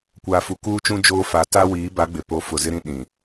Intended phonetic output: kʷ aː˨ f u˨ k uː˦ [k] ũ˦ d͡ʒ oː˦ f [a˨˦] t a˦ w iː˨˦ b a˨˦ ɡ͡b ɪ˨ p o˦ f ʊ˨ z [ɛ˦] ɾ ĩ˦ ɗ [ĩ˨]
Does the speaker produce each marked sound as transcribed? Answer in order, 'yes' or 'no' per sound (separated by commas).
no, yes, no, yes